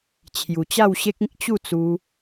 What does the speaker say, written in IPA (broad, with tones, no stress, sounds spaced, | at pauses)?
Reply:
t͡ɕʰ j u˨˩ t͡ɕ a˥˧ w ɕ e˦ k̚ ĩ˦ k̚ t͡ɕ u˥˧ t͡s u˧